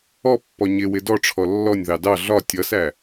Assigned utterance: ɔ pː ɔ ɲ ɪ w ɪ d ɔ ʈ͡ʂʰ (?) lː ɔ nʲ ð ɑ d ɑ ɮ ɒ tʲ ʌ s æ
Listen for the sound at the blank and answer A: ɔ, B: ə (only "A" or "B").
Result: A